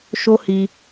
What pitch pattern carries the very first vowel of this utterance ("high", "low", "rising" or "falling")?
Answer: high